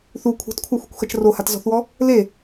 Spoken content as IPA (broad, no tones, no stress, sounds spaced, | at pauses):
θ u kʷʰ e̤ t kʷʰ a xʷ e̤ kʷ x ɐ t͡ʃ r o h a t z ɔ̤ θ w ɔ | l e